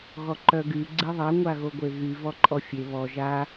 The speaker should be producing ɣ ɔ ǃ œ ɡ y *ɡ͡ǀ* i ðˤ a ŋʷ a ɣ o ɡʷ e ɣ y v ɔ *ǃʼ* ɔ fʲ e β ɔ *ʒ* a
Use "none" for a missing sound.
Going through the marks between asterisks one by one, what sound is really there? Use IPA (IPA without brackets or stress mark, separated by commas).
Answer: ɡ͡ǀ, ǃʼ, ʒ